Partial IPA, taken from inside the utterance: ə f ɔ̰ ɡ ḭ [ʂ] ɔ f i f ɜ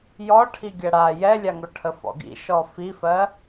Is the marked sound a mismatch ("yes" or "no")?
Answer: yes